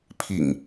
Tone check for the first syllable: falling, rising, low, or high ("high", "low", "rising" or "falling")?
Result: low